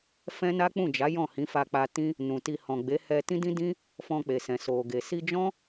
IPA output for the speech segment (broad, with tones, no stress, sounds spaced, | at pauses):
f ɛ̃˦ n a˦ k͡p ũ˦˨ d͡ʒ a˨˦ j ɔ̃˦˨ h ĩ˨˦ f a˧ k͡p a˧ t ĩ˦ | n ũ˨ t i˧ h ɔ̃˨ ɡ͡b e˨˦ h ɛ˧ t ĩ˦ d ĩ˦ d ĩ˦ | f ɔ̃˧ k͡p e˨ s ɛ̃˨ s o˨ ɡ e˨ s i˧ d͡ʒ ɔ̃˦